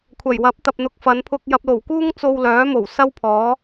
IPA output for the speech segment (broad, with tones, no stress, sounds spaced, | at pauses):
kʷʰ ɐ˨˩ j w ɐ˨˥ p̚ t̪ ɐ˨ p̚ n̪ ʊ˨ k̚ f ɐ˨˧ n pʰ ʊ˧ k̚ j ɐ˨ p̚ l o˨˩ w k uː˥ ŋ t͡s o˧ w l œː˨˥ m o˨˩ w s ɐ˥ w pʰ ɔː˨˥